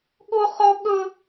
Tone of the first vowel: high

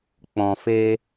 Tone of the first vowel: low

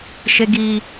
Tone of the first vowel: high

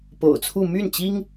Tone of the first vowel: low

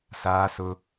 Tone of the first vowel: high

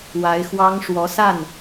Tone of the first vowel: rising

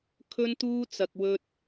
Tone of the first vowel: high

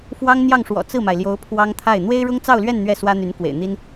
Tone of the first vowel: high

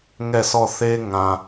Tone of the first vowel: falling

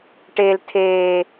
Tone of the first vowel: high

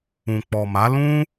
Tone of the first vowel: low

